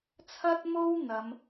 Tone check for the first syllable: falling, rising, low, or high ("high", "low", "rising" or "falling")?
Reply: high